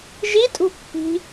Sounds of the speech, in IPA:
ʒ i tʼ ṳ pː i̤

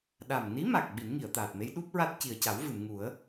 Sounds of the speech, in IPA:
ɗ a˨˩ m n i˧˥ m a˨˩ k̚ ɓ i˨˩˦ n ŋ i˨˩˨ ə̯ t̪ aː˨˩ t̚ m e˧˥ j ɗ u˦˥ p̚ ɹ a˦˥ t̚ c i˨˩ ə̯ c a˨˩˦ w v ɨ˨˩˨ m ŋ u˨˩˦ ə̯

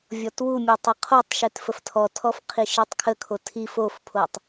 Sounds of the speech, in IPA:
vʲ ɔ t w u mʲ o tˤ ə qʰ o tˤ ʃ e t f ə f tʰ ɔ tʰ ɔ f qʰ i ʃ i tˤ kʰ ə kʰ o tʰ i f o f pʰ o tˤ

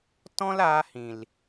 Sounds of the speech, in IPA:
t ɔ̃˦ l aː˧ h ĩ˨ l

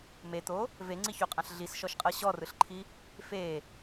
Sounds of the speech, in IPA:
m e t̪ o | v e ŋ͡ǀ i ç o qʼ ã ɬ ɮ i s ʃ ɔ ʃ qʼ ɤ ɕ ɔ r ɯ ɬ ǃʰ i | f e

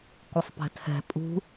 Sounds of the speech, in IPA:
kʷ ɨ sˤ p ɛ̤ tʰ ɛ̤ pʼ ṳ

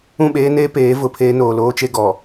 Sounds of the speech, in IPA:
ũ˦˨ ɓ eː˦ n eː˦ p eː˨˦ v ʊ˨ pʰ eː˦ n oː˨ l oː˦ t͡ʃ e˦ ɡ ɔ˨

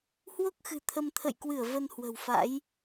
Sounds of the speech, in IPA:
h w o˦˥ k̚ x ɨ̤˨˩ t̪ʰ ə˧ m t̪ʰ ə̰˧˨ j k w ɨ˧˩ ə̯ v ə˧ n h w ə̤˨˩ w f a̰˧˥ j

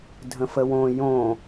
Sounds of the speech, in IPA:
dʱ ə̃ f ə w õ j õ

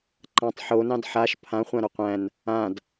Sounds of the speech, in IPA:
ǃ ã tˤ ħ o n ɑ̃ d ħ a ʃ pʰ ã χʷ ã ɾ o qʷ æ̃ n | ã d

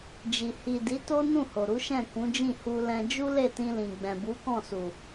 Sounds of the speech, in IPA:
d͡ʒ i˨ h i˨ d i˨˦ t o˦ n ũ˦˨ h o˨ ɾ u˨˦ ʃ ɛ̃˦˨ k ũ˨˦ d͡ʒ ĩ˦˨ h u˧ l ɛ̃˧ d͡ʒ u˦ l e˦˨ t ĩ˧ l ĩ˨ ɡ͡b ɛ̃˨ b u˨˦ k ɔ̃˦˨ s u˨

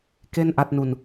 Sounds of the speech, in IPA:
k e˥˩ n ʔ a˥˩ t̚ n u˧ n

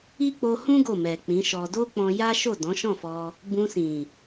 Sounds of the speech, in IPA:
i˦ k͡p o˧ h ũ˦ ɡ o˦˨ m ɛ˨ k͡p ĩ˨˦ ʃ ɔ˧ d o˦ k͡p ɔ̃˧ j a˦ ʃ o˦˨ d ɔ̃˨˦ ʃ ɔ̃˦˨ f ɔ˧ | b ũ˧ s ĩ˨

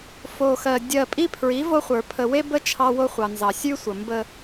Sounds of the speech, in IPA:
f o˨ x ɜ˨ dʲ ɜ˨ pʼ i˦ pʰ ɹ i˨˦ v o˦ χʷ ə˞˨ pʰ ə˨ w e˦ b ə˦ t͡ʃʰ ɑ˦ w o˦ χʷ ɑ˨ n z ɑ˨ sʲ ʉ˦ sʷ ə˨ m b ə˦

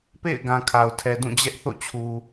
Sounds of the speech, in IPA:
p ḛ˦˨ ɪ̯ ɡ ã˨ kʰ a˨ ʊ̯ tʰ ɛ˨ d ũ˦˨ d͡ʑ ɛ˦ ʔ θ o̰˦˨ t͡ɕʰ u˨

